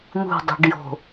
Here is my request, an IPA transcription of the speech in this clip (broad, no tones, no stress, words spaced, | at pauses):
n̪ṳdˤṳɖjo̤